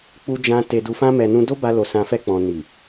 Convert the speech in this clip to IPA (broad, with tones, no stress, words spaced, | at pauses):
k͡pu˧d͡ʒã˧ te˨du˨fã˧mɛ˨ nũ˧do˦ba˧ lo˨sã˨fɛ˧ k͡pɔ̃˨ ni˨